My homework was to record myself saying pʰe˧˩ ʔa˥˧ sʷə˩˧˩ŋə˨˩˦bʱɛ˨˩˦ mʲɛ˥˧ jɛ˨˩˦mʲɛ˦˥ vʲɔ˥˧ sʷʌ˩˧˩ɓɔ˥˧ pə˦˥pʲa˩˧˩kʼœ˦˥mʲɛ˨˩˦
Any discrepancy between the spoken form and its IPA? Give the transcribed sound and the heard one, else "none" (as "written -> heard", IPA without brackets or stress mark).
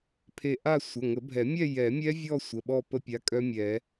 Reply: ʌ˩˧˩ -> ə˩˧˩